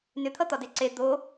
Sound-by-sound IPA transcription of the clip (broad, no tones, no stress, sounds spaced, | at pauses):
n ʏ t̪ʰ ʌ t̪ ɒ d e ǀ e d̪ o